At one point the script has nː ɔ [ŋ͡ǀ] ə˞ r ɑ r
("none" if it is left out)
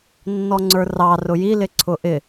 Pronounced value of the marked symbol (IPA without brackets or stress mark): ŋ͡ǀ